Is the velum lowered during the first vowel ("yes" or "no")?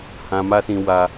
yes